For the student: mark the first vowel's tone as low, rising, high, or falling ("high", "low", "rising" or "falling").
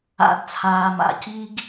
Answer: low